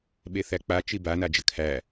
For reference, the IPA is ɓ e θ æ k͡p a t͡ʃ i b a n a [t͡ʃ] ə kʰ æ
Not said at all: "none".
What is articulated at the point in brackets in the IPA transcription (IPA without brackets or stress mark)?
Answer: d͡ʒ